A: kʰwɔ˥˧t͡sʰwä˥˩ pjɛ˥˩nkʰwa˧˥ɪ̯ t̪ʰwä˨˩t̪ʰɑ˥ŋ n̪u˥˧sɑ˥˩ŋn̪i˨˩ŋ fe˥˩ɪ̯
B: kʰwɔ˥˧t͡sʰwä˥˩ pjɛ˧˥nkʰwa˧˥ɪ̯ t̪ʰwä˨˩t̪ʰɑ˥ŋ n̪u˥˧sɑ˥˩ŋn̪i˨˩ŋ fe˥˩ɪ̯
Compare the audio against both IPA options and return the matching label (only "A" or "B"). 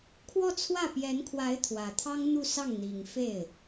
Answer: B